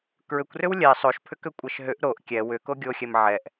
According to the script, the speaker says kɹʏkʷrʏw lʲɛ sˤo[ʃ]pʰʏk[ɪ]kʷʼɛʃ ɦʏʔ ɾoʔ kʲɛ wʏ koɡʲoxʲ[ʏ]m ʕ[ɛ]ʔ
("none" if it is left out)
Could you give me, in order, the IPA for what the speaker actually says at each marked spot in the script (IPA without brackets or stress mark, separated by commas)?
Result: ʃ, ʏ, ɛ, ɛ